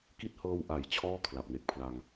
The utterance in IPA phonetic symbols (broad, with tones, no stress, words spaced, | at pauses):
ki˦˥t̚hɤː˧w ʔa˩˦j t͡ɕʰɔː˥˩ kʰla˨˩p̚ne˨˩k̚pʰla˧ŋ